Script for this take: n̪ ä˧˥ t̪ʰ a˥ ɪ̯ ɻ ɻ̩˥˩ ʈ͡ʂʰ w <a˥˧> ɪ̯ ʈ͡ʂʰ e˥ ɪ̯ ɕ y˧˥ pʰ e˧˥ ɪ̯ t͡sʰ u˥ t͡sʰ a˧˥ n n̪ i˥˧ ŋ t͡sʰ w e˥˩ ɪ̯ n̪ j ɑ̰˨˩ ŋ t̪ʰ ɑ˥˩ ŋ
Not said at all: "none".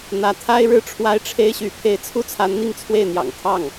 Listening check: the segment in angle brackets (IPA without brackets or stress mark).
a˥